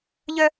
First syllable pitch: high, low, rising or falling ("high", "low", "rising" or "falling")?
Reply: high